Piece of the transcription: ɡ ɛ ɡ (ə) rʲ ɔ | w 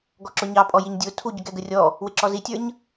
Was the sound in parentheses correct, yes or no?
yes